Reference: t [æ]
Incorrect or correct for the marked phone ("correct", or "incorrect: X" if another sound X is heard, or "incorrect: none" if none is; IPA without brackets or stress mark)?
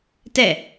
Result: incorrect: ɛ